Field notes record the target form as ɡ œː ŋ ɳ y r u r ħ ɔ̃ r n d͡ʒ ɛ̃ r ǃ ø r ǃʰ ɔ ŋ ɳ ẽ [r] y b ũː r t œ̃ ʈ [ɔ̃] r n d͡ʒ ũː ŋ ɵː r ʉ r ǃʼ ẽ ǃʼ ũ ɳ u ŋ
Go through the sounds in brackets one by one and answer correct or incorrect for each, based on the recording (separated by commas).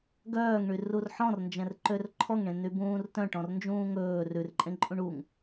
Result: incorrect, correct